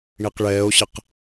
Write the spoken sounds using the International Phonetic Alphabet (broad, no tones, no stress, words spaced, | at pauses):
ɳiqɭɛːo̯ɕɪq